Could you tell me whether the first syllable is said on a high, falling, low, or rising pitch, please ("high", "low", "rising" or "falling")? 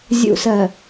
low